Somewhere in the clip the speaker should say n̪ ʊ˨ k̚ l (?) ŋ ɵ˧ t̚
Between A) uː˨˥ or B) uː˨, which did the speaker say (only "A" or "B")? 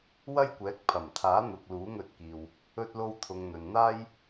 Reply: A